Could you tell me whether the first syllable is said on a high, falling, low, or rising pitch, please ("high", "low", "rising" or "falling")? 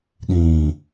low